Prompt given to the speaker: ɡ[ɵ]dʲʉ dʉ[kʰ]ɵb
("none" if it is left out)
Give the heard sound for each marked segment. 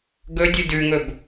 ɵ, ŋ

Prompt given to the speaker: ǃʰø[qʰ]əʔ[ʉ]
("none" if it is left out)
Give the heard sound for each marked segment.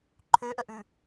ʔ, ʉ

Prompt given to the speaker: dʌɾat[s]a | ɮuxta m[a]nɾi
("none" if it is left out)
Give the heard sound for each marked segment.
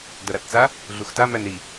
t͡s, æ

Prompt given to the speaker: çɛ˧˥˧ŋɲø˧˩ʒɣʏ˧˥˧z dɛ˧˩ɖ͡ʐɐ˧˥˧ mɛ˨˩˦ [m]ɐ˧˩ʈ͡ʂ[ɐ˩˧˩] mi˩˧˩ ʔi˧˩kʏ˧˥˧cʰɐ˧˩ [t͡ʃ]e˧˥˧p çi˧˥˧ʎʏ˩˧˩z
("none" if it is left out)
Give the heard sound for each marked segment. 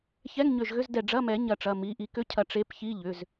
ɲ, ɐ˩˧˩, ʈ͡ʂ

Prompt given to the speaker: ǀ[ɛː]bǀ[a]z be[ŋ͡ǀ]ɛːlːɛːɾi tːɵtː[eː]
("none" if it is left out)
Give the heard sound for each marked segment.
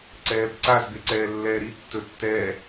ɛː, a, ǀ, ɛː

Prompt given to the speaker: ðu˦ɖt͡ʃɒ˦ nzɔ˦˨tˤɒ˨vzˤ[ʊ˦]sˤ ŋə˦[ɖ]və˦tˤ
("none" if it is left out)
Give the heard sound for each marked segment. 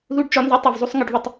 u˦, ɖ

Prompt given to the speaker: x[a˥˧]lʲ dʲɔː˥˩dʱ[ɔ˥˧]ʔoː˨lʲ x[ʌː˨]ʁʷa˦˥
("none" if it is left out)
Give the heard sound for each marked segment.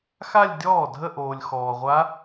a˥˧, ə˥˧, ɔː˨

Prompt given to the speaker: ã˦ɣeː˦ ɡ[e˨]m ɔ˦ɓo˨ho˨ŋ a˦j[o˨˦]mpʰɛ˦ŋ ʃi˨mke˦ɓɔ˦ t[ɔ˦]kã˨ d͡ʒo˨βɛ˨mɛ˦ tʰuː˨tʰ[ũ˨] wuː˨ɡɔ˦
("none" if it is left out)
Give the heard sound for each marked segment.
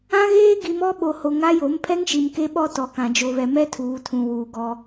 i˨, o˨˦, ɔ˨, ũ˨

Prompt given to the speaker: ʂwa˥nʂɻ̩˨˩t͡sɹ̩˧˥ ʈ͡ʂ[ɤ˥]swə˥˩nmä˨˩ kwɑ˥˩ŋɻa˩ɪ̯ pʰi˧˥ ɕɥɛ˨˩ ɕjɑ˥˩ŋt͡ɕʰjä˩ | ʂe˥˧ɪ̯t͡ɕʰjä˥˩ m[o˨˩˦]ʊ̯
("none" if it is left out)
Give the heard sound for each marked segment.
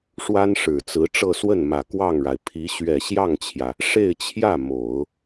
ɤ˥˧, o˨˩˦

